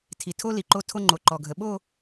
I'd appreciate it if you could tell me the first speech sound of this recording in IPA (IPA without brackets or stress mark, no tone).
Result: tʰ